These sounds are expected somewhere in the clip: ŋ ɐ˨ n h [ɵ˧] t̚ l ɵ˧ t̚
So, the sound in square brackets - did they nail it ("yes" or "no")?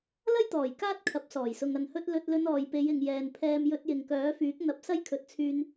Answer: yes